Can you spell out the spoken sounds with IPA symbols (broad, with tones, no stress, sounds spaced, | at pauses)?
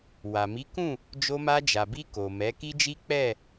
w a˨ m i˨˦ k ũ˦˨ | d͡ʒ o˧ m a˧ d͡ʒ a˨ b i˧ k o˨ m ɛ˨˦ k i˦ d͡ʒ i˦ k͡p ɛ˦˨